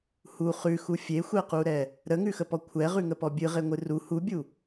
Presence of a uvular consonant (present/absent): present